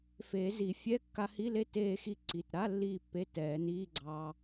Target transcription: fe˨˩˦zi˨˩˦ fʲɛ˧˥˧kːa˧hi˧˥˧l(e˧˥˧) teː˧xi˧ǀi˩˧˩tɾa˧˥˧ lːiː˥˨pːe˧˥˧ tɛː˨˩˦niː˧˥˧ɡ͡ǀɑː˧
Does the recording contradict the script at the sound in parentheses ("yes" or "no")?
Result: yes